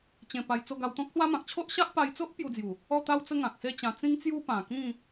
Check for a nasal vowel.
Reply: present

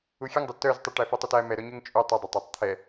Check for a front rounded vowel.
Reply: present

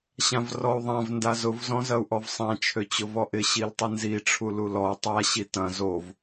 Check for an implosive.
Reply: absent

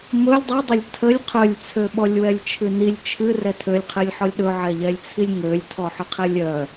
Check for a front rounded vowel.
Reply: present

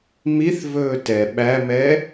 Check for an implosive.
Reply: present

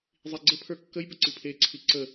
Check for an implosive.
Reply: absent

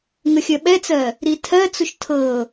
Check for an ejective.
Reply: absent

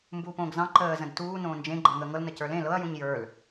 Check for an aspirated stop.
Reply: absent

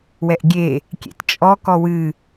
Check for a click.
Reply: absent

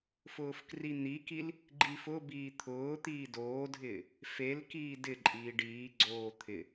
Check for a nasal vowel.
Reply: absent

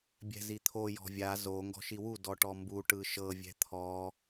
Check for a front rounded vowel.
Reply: absent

